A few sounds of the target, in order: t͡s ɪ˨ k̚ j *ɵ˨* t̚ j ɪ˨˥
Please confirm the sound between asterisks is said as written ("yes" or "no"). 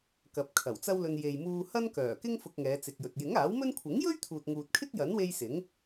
yes